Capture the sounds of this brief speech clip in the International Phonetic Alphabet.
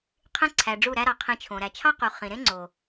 qʰẽ˦ ǀʰæ˨ɖ͡ʐu˦˨ɾæ˦ɾɑ˨ qʰĩ˧t͡ʃʰõ˨ ɾæ˨t͡ʃʰɑ˦qu˨ χĩ˨ɾẽ˦ ŋ͡ǀo˨

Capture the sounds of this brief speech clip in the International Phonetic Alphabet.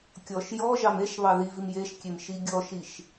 kʲɔʃ jɔʒɑm eʃ βɑðivim jeʃkʲem ʃiɡʲɔʃiʃ

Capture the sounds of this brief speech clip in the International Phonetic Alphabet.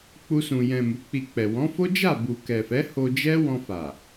k͡pu˦sũ˧ jɛ̃˨ mu˨˦k͡pi˧k͡pɛ˨ wɔ̃˨˦fo˦d͡ʒa˦˨ bu˨kɛ˨fɛ˨˦ ho˧d͡ʒɛ˦ wɔ̃˧fa˨

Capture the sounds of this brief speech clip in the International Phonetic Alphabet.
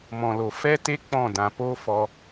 mɔ̃˨lo˨ fɛ˦te˦ k͡pɔ̃˦˨dã˨ po˧ fɔ˧

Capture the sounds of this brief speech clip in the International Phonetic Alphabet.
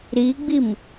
ɾiɡ͡bim

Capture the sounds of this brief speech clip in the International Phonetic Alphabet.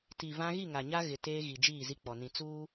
ti˨ vã˦ ɣi˦˨ŋa˨ɲa˦ ɣɪ˨ teː˦ɣi˨d͡ʒiː˦˨zi˦ k͡pɔ˨nĩ˨ t͡suː˦

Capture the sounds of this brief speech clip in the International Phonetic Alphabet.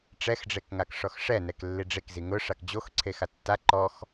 ʈ͡ʂɛxɖ͡ʐekŋak ʂɔxʂɛnɛk lːiɖ͡ʐekzi ŋʊʂak d͡ʑoxǀʰe xatːa ǃɔx

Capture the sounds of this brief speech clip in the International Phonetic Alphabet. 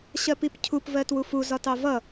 ɕɜpipcʰup vɜtwufu zɒtɑvʌ

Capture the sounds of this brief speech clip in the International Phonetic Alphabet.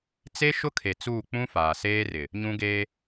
t͡se˦ ʃʊ˦kʰe˨ t͡suː˦˨ k͡pũ˦faː˨seː˦rɪ˨ | ɲũ˦ɡeː˦

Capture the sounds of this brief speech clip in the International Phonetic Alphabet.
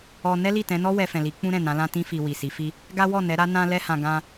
ɔ˧ nɛ˦li˦˨tɛ̃˨˦nɔ˦ wɛ˧fɛ̃˨li˨˦ k͡pũ˦ɾɛ̃˦˨ nã˨˦lã˦tĩ˦fi˧ wi˨si˨˦fi˦ | ɡa˦wɔ˦˨nɛ˨˦ ɾa˦nã˦lɛ˦hã˧ ɡã˧

